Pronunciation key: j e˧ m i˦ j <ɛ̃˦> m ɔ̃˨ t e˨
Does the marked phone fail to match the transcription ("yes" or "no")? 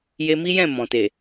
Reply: yes